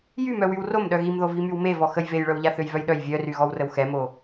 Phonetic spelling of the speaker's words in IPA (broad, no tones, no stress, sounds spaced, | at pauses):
j y m œ w y w r o m ɗ œ ɣ i m ð o v i m y w m e v ɔ x ə j v e j ɭ œ w ʎ a θ ø j v œ j ɗ œ j vʲ œ r y ɣ ɔ w r ə w x ɛ m o